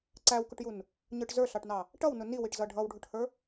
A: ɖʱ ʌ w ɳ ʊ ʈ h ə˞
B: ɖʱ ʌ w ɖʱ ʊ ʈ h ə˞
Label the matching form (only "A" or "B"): B